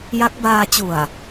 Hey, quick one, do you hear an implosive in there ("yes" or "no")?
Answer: no